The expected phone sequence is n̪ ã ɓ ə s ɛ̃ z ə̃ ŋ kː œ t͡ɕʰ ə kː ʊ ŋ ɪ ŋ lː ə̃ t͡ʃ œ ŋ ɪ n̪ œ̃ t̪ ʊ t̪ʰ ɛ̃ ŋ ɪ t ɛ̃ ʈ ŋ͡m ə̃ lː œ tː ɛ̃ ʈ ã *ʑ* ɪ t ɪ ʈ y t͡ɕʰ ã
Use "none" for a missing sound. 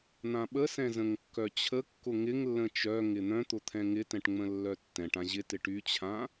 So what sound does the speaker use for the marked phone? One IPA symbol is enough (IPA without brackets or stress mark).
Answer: ʑ